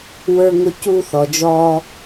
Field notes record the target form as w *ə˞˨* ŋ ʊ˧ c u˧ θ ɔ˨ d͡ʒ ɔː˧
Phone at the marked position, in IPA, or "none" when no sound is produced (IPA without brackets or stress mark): ə˞˧